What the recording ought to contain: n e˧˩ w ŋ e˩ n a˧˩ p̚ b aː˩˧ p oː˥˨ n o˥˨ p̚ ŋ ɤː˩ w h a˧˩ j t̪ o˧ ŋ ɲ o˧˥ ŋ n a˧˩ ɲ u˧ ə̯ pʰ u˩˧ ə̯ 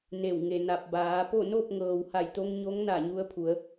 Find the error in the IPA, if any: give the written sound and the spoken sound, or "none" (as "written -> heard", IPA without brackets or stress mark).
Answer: oː˥˨ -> o˥˨